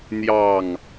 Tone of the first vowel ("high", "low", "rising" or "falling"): falling